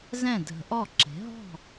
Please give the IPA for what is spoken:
z ɛ̃˥˩ dʱ ə̤˨˩˦ ʔ ɔ˥˩ ǁ e̤˩˥ ɦ ɔ̤˥˩

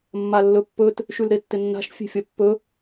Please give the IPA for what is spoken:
mː a lː ɵ pː ɵ t | ʃ ʉ l ɾ e tː ɪ nː a̤ ʃ fʲ e̤ fʲ ɐ pː ɵ

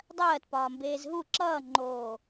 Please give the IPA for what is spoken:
dˤ ɜː t p ɒː m b eː z ɦ u ǁ ʌː ŋ͡ǃ oː

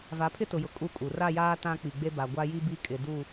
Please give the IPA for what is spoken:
v a˨˦ pʰ ɪ˦ t ʊ˨ j ʊ˨ kʼ u˦˨ kʼ u˨ r a˦˨ j aː˦ t ã˦ k͡p i˨ ɡ͡b e˦ b a˨ ɡʷ a˦ j i˦ b i˦ kʼ ɪ˨ d u˦˨

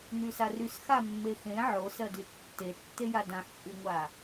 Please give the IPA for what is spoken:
n y s a r y s x a mː e x ẽ ʕ o s ɜ d y tː e tː e j a d ã ħ t͡ʃʼ y ŋʷ a

